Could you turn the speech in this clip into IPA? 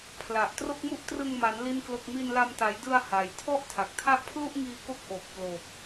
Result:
pʰla˨˩ʔ tro˥˩k̚mu˥˩ʔ trɯ˧ŋma˩˦n li˥˩nklo˥˩k̚ mi˧nla˧mta˩˦jdɯ˧a̯ ha˩˦jtʰɔ˥˩ʔ tʰa˨˩k̚tʰa˥˩ʔ pʰlu˥˩ʔŋiː˧ko˦˥k̚ ʔo˨˩k̚plo˨˩k̚

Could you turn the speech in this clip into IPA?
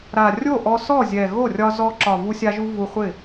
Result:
ɾa˨˩ rʲo˥˩ʔɔ˧sɔ˥˩zʲɛ˨˩ ɣo˥˩rʲɒ˧ zɔ˧ǁɒ˨˩ vu˧sʲa˧ʒu˧ vu˧χʷɪ˥˩

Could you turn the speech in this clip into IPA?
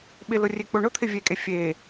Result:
ɓɪlʊ rʲek͡poɳʊt̪ʰɪ vʲekʼe fʲe

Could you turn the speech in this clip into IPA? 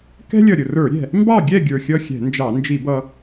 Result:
kɛ̤˥lʲʌ˧˩ ɾʲʊ˧˩rə˞˧˩˧ɾʲɛ̤˧˩ | mbɑ˥˨ɡʲɛ˥˨ ɡʲə˞˧˩xʲʌ˥˨xʲɛ̤˧˩˧nd͡ʒɑ˧˩˧ nd͡ʒi˧˩˧bʌ˧

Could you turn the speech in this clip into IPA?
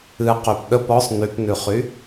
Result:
ɨ qypɗəp ɔsˤ nypnʉχy

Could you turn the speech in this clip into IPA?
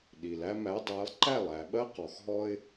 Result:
ɗi˩læ˦mæ˨˦dˤæ˨˦lˠ ǃæ˥˩lˠæ˩ɓɜ˦ qɔ˩xɦɔ˦ɪ̯

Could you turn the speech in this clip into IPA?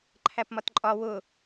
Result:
ǃʰæpmɒtǃʼɒ wʊ

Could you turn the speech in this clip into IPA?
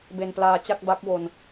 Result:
be˧nplaː˧t͡ɕa˥˩k̚ba˦˥k̚ wo˧n

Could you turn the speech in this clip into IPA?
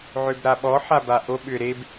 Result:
ʕøbɾaɓɔ ħabaʔo ɓʏ ɾeb

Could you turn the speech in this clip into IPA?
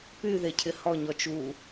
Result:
py ðecʰɪhɔ ɲɔt͡ʃu

